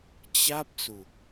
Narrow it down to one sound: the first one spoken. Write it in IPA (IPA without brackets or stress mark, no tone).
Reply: t͡ɕ